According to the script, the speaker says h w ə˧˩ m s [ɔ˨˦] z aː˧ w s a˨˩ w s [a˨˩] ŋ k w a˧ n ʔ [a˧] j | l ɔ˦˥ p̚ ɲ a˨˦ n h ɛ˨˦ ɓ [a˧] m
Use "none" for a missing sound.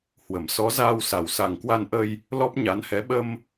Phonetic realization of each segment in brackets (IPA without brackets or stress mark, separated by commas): ɔ˨˦, a˨˩, ə˧, ə˧